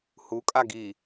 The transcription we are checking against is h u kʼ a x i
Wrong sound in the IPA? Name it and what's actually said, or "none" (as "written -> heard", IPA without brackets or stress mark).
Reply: x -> ɡ